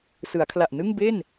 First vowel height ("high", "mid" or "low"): high